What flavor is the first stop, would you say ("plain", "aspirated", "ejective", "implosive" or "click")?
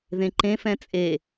click